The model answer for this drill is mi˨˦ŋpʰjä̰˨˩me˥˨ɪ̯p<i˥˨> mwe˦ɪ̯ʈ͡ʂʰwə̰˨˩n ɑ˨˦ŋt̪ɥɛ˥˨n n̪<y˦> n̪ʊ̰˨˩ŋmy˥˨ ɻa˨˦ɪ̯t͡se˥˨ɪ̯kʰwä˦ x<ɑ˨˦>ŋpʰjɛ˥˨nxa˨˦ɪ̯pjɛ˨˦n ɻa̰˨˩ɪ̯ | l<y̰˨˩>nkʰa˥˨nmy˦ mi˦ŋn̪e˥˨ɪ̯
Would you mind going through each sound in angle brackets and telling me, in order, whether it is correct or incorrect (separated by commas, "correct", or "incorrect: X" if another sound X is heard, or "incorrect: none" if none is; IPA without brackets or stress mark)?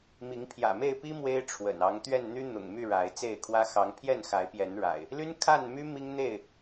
incorrect: i˦, correct, correct, incorrect: y˦